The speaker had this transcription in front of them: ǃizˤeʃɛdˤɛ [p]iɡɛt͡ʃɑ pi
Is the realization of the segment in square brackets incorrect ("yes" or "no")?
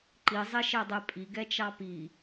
yes